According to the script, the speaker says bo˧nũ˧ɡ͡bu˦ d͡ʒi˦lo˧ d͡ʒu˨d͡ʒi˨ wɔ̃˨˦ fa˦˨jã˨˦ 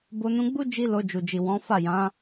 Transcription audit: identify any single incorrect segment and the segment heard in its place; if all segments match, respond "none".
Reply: none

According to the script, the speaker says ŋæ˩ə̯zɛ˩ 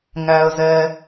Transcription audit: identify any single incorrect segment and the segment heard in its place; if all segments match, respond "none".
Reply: none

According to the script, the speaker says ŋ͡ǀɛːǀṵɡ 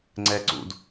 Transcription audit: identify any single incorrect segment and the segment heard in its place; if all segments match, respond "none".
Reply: ɡ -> d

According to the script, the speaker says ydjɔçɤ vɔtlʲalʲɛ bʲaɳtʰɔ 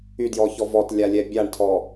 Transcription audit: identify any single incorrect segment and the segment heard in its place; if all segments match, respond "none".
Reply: ɤ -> ɔ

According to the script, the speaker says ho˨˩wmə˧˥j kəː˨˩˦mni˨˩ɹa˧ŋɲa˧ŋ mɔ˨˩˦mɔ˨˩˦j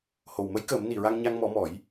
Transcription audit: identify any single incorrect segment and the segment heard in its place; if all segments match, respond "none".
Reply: none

